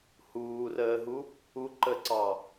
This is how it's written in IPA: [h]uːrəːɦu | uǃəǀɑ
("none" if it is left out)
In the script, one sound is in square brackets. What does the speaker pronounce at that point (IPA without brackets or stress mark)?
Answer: h